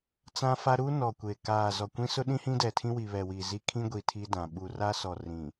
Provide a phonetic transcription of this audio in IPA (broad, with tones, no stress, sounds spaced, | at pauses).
t͡s ã˦ f a˦ ɾ u˦ n ɔ˨ kʷ e˨ k aː˨ z ɔ˨ kʷ ĩ˦ s ʊ˦ ɗ ĩ˦ h ĩ˦ d ɛ˨ tʰ ĩ˦ w i˨ β ɛ˨ w i˨ z i˦ kʰ ĩ˦ ɡʷ i˨ tʰ i˦ d ã˨ ɓ u˨ r a˦ s ɔ˨ r ĩ˨